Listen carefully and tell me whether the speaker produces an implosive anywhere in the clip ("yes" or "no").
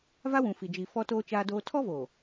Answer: no